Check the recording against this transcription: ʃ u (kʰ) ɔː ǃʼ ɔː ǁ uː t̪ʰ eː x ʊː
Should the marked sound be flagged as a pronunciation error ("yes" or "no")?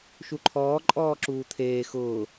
yes